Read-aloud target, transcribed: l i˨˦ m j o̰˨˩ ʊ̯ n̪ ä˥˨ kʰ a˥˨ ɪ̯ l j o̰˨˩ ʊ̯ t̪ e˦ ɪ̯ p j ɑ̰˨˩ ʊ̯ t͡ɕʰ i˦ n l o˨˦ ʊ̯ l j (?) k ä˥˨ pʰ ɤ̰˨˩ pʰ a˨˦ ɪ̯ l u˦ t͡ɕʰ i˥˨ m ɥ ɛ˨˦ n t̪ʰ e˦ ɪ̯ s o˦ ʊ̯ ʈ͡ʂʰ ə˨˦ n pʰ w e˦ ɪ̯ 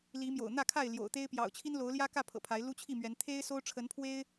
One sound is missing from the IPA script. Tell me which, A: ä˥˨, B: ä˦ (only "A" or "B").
B